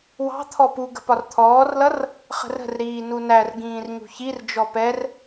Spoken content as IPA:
w ɑ̤ t̪ʰ ɔ p u ɡ ə̤ p ɒ r t̪ʰ ɔː r l ʌ r | χ ə̤ r ə̤ r ɾ iː n u n æ r ɡ ĩː r ɲ ṳ ç i r d͡ʒ ɔ p ɛ r

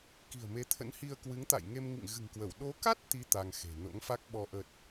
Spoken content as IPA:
k i̤˨˩ ə̯ m e˨˦ t̪ʰ ə̰˧˥ n h i˧ ə̯ k w ɨ˨˦ ŋ t̪ a̰˧˨ j ŋ e˧ m ŋ ḭ˧˨ ŋ ɣ ɨ̤˨˩ ŋ k w ə˧˩ w ɗ o˨˦ k a˦˥ t̚ t̪ i˨˦ t̪ a˧ ŋ x e̤˨˩ n o̰˧˥ ŋ f a˦˥ k̚ ɓ ɔ˧ ʔ ə˨˩ t̚

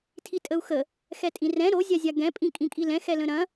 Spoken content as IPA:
tʰ i tʼ ə u̯ x ə | x ɛ tʼ ĩ r ɛ̃ ɾ o zʲ a zʲ a ɡ ɛ̃ pʼ ĩ kʼ ĩ kʼ i l ɛ̃ x ɛ l ə̃ ɾ ɐ̃

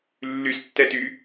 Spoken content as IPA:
lː y s tː ɛ t y

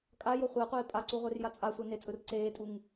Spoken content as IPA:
kʼ a j o χʷ ɛ qʷ eː pʼ a ǀ u ʁʷ e r j a t͡sʼ a sʷ ɛ n e t͡sʼ ɯ r ǀ eː tʼ u ŋ

